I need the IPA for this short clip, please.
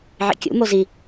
ʕ ḭ kʲ ṵ m o z i

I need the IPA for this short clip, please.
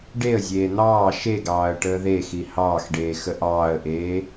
ɖ e ə̯ zʲ eː n̪ ɑː ʃ e ɡ ɑː ə̯ ʈ əː ð e x i h ɑː x ɖ eː x ə ʔ ɑː ə̯ ʔ eː

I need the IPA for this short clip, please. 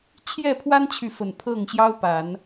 t͡ɕʰ j ɛ˥˨ pʰ w a˦ n t͡ɕʰ y˨ f ə˨˩ n pʰ ɤ˥˨ ŋ ɕ j ɑ˦ ʊ̯ p a˨˦ n

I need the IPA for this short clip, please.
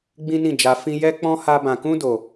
ɡ͡b ĩ˦ n ĩ˦˨ d͡ʒ a˧ f ĩ˦ j ɛ˦ k͡p ɔ̃˦ h a˦ b ã˧ k ũ˦ d o˧

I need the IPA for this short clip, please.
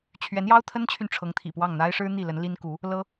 t͡ɕʰ ɥ ɛ˧˥ n j ɑ˥ ʊ̯ t̪ʰ ə˥ n t͡ɕʰ y˨ n ʈ͡ʂʰ ɤ˧˥ ŋ t̪ʰ ḭ˨˩ p w ɑ˥˩ ŋ n̪ a˥ ɪ̯ ʂ ɻ̩˥ n̪ i˥˩ l ə˧˥ n l i˥ n k u˧˥ | l ɤ˥

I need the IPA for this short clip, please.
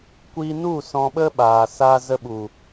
kʷ iː˧ n u˦˨ s ɔ̃˧ ɓ ə˦ ɓ aː˨ s a˧ z ə˧ ɓ u˨

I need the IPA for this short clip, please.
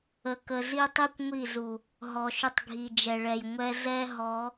ə˨ k ə˨ z i˦ tˤ i˦ kʷ ŋʷ i˦˨ z u˨ | ɦ ɔ˨ ʃ ʏ˦ tˤ ɡʱ i˨ d͡ʒ ɛ˨ ɭ ɛ˨ j ŋʷ ɛ˦ z ɛ˦ ɦ ɔ˨˦

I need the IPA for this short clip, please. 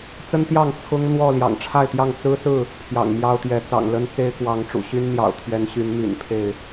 t͡s ə˦ n t̪ j ɑ˥˨ ŋ t͡sʰ ʊ˦ ŋ n̪ w ɔ˥˨ l j ɑ̰˨˩ ŋ ʈ͡ʂʰ a˥˨ ɪ̯ t̪ j ɑ˥˨ ŋ t͡s ɹ̩˦ s ɹ̩˥˨ | pʰ j ɑ̰˨˩ ŋ m j ɑ˦ ʊ̯ t̪ j ɛ˨˦ t͡s ɑ̰˨˩ ŋ l ə˦ n t͡s e˦ ɪ̯ k w ɑ˨˦ ŋ ʈ͡ʂ ṵ˨˩ ɕ y˦ n n̪ j ɑ̰˨˩ ʊ̯ t̪ʰ ɥ ɛ˨˦ n ɕ y˨˦ n m y̰˨˩ n pʰ e˥˨ ɪ̯

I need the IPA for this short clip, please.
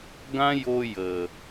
ɡ ã˦ j o˧ j ə˨

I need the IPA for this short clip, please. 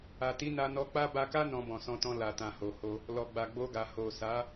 a˨ t i˨˦ n a˧ n ɔ˧ k͡p a˦ b a˧ k a˦ n ɔ̃˧ b ɔ̃˨ s ɔ̃˧ t ɔ̃˧ l a˨ t ã˨ h o˨ h o˧ | l ɔ˨ ɡ͡b a˨ ɡ͡b o˧ ɡ a˨ h o˨ s a˨˦

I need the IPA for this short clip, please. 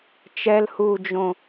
t͡ʃ ɛ l h uː d͡ʒ õ

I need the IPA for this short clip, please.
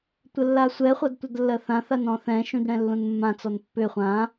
tʷ ə lː a sʷ ɛ χʷ ɐ d tʷ ə d lː ɜ θ ã θ a n ɔ̃ θ ɛ̃ ʃ ũ d ɽ ɛ̃ lː ũ n mː ã t͡s ɔ n pː ʏ χʷ ã

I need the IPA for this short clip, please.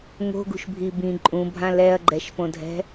ŋ o̤ ɡ ṳ ʃ bʱ i b ĩ ǃʼ ũ bʱ ã l ɛ ɐ̯ ɡ͡ǃ ɛ ʃ p õ dʱ ɛ̤

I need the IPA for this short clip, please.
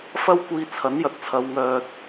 f ɐ˥ w kʷ iː˧ t͡sʰ ɐ˨˥ n j ɐ˨ t̚ t͡sʰ ɐ˨˧ w ŋ œː˧ t̚

